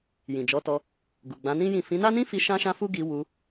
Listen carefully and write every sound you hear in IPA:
jĩ˨d͡ʒɔ˨˦tɔ˧ | ɡu˨ɡ͡bã˨˦nĩ˦jĩ˦˨ fĩ˨˦na˦nĩ˦fi˧ ʃã˦ʃã˦fu˦ ɡi˧wu˧

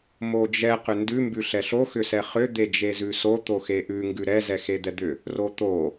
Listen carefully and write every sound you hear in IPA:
mod͡ʒɛ qʏndʉ mbʉɬɛɬo xʏsɛχʏ d̪ed͡ʒezʉso t̪oxeʔʉ ŋɡʉɾɛ zɛxed̪ɛd̪ʏ | rot̪o

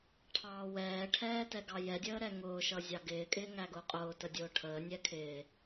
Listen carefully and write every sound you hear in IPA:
ʈʰɑːwɛːʈʰɛː tɛɡɑjɛdʲəː ɾɛŋʊːʃʌ zʲɑɡɪːkʼɪː ŋæɡʊːqʼʊːtə dʲʊːʈʰəːnʲɛ kʰɪː

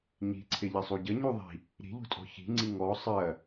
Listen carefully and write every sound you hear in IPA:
ɲi̤ǀʰɪ ʎɐsˤuɟə ɲuðˤi̤ | ɾi̤ʎṳtʼɔ̤ çi̤ŋ͡ǀi ŋɔ sˤɜ

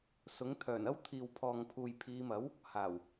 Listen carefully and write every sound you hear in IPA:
sʊ˨˥ŋ t̪ʰœː˨˩nɐ˥wt̪ʰiː˨wpʰɔː˨ŋ pʰuː˨jpʰiː˨˧ mɐ˨˥w | haː˨˩w

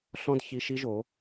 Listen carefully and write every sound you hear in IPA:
ɬɔ̃˦d çi˧ʃi˦ʒo˨˦

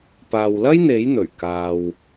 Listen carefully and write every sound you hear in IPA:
paː˨wlɐ˥jn̪e˨˥jn̪ɵ˨˩ɥ kaː˨w

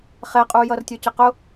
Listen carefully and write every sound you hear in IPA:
χɛqʼujʌrtʲə˞ cɪqʊ

